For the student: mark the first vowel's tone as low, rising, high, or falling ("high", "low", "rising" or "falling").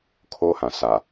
high